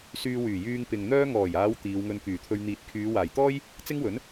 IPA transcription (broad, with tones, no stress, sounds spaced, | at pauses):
s yː˧ w yː˨˩ j yː˧ ŋ p ɪ˨ ŋ n̪ œː˥ ŋ ɔː˨˩ j aː˨˧ w t̪ iː˨˧ w ŋ ɵ˧ n k yː˨˩ t̪ʰ ɵ˧ ɥ n̪ iː˨˥ t̚ kʰ yː˨˧ w aː˨˩ j t̪ ɔː˥ j | t͡s ɪ˥ ŋ w ɵ˨˥ n